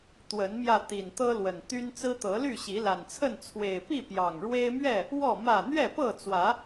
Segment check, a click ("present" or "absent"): absent